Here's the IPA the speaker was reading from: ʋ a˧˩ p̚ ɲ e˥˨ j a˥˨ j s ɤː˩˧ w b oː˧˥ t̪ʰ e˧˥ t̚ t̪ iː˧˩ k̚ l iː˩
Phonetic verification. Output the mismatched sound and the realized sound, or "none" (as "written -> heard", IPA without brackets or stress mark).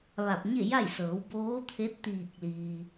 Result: none